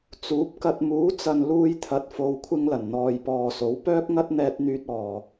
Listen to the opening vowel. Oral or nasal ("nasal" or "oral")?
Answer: oral